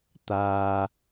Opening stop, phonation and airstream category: plain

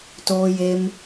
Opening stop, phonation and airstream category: plain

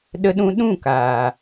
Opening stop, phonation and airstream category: implosive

